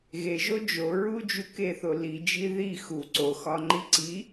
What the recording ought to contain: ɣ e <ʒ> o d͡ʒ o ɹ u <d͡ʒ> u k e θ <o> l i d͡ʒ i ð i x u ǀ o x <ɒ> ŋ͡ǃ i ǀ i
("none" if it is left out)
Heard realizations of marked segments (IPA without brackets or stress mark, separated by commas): ʒ, d͡ʒ, o, ɒ